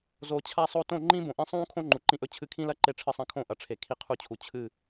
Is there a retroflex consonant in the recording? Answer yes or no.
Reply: yes